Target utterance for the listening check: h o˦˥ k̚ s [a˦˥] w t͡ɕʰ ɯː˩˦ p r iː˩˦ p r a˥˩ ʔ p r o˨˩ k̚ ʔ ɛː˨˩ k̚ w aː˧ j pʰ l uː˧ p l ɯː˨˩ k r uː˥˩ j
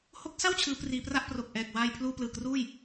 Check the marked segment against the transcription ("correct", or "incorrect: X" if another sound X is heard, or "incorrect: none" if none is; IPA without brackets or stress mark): incorrect: a˥˩